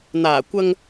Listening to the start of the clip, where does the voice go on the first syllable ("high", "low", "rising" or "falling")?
low